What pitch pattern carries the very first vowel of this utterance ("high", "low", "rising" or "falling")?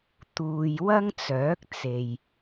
low